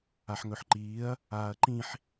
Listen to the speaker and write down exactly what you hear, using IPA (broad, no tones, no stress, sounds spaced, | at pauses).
a ħ ŋ ɵ ħ ǃ iː ɐ̯ | aː ɐ̯ ǃ ĩ ħ